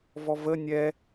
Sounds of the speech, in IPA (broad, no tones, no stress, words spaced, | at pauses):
vɔvə nʲɛ